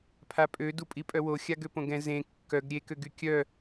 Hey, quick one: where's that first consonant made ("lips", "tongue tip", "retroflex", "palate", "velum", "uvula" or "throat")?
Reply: lips